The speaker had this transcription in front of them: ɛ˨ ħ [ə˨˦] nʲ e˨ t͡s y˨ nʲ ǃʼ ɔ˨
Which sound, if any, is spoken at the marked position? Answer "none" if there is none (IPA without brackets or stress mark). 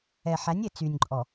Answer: æ˨˦